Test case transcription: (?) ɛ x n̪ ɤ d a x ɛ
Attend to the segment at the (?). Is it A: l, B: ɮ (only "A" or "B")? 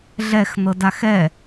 B